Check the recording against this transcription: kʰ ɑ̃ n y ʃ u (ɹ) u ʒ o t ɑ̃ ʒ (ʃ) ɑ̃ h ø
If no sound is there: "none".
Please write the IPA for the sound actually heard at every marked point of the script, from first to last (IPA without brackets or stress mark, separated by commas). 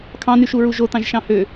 ɹ, ʃ